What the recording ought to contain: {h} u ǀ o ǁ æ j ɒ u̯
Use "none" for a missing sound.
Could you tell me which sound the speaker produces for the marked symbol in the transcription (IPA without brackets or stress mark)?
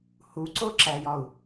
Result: h